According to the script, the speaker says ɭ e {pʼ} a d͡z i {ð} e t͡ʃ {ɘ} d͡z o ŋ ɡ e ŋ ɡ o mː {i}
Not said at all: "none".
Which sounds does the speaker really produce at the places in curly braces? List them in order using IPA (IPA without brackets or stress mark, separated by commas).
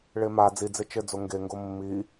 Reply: m, d͡z, ɘ, i